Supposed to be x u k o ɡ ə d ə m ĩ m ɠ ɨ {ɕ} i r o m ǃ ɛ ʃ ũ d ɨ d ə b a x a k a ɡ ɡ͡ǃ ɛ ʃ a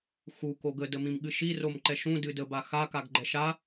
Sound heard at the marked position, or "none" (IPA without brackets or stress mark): ʃ